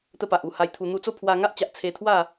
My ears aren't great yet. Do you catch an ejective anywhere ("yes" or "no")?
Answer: no